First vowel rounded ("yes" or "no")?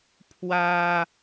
no